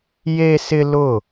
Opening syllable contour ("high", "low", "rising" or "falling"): high